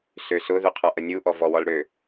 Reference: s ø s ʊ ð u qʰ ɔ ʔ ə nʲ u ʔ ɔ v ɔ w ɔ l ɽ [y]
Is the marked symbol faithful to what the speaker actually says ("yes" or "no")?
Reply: no